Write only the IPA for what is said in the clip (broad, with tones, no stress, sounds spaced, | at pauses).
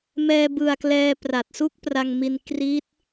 m ɛː˧ b ɯ˨˩ a̯ k l ɛː˧ p r a˨˩ t̚ s u˦˥ k̚ p r a˧ ŋ m i˧ n k r i˦˥ t̚